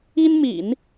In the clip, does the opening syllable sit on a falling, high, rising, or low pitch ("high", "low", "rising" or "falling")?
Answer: high